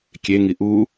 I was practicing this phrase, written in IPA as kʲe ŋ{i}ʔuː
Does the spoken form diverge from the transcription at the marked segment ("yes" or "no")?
no